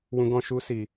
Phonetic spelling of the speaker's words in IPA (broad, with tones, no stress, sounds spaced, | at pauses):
w ũ˦ ɡ ɔ̃˦ ʃ u˦ s i˧